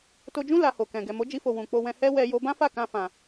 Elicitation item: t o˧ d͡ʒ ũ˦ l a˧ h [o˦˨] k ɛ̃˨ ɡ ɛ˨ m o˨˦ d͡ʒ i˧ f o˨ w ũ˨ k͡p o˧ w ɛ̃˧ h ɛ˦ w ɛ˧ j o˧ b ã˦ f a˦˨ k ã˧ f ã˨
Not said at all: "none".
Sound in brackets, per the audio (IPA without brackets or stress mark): o˨